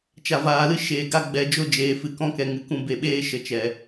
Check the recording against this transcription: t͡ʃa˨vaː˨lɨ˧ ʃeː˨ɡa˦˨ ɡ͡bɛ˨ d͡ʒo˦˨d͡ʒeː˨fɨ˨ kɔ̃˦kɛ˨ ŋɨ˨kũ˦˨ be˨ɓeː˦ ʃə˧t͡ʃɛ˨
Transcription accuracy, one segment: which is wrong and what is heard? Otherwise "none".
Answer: none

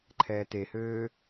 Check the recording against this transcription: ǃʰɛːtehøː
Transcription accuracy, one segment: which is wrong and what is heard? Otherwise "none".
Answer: none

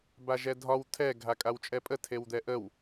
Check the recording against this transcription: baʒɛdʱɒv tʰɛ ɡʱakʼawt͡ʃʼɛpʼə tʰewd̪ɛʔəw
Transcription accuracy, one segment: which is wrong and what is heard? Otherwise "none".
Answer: v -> w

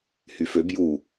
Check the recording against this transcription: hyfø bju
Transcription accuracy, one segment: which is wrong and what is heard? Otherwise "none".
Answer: none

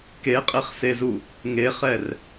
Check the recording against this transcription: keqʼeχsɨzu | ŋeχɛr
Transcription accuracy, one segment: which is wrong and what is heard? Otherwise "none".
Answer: ɨ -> e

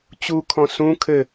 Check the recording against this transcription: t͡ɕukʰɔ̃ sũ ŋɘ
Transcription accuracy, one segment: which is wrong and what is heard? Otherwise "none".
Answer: ŋ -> kʰ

